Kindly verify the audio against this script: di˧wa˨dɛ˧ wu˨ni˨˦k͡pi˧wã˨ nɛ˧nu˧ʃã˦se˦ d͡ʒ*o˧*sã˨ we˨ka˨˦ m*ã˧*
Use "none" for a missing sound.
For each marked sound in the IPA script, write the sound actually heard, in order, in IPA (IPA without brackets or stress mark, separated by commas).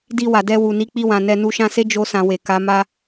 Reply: o˧, a˧